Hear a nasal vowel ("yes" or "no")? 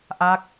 no